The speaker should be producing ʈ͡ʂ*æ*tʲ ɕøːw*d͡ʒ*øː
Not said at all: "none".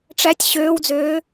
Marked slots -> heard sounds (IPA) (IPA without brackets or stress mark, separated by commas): æ, d͡z